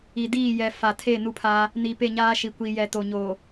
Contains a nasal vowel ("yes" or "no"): no